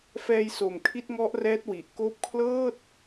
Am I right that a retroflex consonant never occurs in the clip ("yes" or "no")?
yes